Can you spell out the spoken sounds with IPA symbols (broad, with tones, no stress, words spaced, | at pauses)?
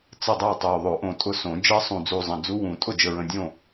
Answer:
t͡sə˥˩dˤɜ˥˩tˤo˨˩ ðˤo˨˩˦ʔõ˨˩tʼʊ˧˥sõ˨˩˦ d͡ʒɜ˧˥sˤũ˨˩d͡zu˨˩ zˤə̃˨˩d͡zu˧˥ wũ˨˩˦ tʼʊ˥˩d͡ʒə˨˩ɹə̃˨˩ dʲõ˥˩